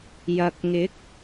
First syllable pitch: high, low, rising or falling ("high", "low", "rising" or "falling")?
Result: low